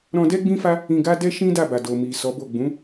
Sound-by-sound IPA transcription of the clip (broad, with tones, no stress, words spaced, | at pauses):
ɾɔ̃˧dɛ˦ ɡ͡bĩ˦fa˦ | ĩ˧ɡa˦dɛ˦ ʃĩ˦da˦˨ba˨do˨ mi˨ sɔ˨˦bo˦˨ ɡ͡bũ˨˦